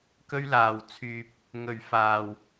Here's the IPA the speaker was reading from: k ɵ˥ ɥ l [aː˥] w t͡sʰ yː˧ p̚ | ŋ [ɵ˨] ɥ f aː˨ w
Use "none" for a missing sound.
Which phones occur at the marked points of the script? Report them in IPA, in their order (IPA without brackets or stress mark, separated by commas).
aː˨, ɵ˨